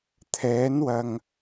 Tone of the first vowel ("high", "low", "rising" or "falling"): rising